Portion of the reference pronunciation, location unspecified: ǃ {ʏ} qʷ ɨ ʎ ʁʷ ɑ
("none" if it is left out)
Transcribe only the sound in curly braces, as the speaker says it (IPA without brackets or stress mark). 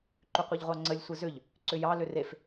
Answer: ʏ